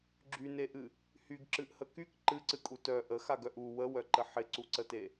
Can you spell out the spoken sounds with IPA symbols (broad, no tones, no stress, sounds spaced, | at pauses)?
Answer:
ɡ͡ǁ y n e ʔ ɨ | h y ɡ ǁ ɨ ʔ h ə k y k ǃ ɨ ǀ ɨ kʼ u t œ ʔ ə x a ɡ œ ʔ u w ə w œ ǃ ə ħ ɪ ǀ u ǀ ə t e